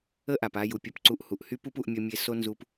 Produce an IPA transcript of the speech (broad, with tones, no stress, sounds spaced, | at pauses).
ə˦ ʔ a˨ p a˧ j u˨ pʲ ʌ˧ p ǀ u˧ ʔ h u˨ ʔ h y˦ p u˦ p u˧ ʔ mʲ ʌ˧ mʲ e˧ s o˦ n z u˧ p